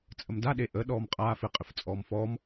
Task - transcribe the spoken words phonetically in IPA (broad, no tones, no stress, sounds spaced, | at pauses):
t͡sʼ ə m d a ɗ e ʔ ə ɗ ɔː m qʼ aː f ɪ qʼ ɪ f t͡sʼ ɔː m f ɔː m